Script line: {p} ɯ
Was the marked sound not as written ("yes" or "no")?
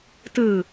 yes